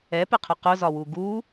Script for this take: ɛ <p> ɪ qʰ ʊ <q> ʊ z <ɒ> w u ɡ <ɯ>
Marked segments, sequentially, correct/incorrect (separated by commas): correct, correct, correct, incorrect